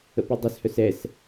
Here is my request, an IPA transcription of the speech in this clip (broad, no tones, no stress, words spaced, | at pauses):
ə̰pɵdˤœshœs ɛs